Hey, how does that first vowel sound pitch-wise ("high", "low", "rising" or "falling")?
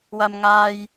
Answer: low